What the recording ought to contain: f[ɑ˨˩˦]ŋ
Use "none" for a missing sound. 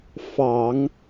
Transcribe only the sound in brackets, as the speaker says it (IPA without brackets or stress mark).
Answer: ɑ˨˩˦